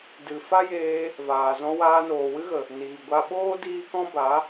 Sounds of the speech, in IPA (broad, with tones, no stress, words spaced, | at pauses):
dɨ˨fa˦jeː˧ | vaː˨zɔ̃˧ waː˧noː˨wɨ˦ɣə˨ | niː˨ɡʷa˧ɓoː˦ diː˦kɔ̃˦ba˨˦